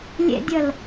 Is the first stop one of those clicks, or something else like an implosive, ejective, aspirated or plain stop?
plain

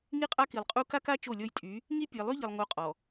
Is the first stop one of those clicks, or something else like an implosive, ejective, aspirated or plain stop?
ejective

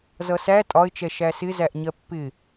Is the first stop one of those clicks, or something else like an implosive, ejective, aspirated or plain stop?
ejective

